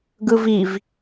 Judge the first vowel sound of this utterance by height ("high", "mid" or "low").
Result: high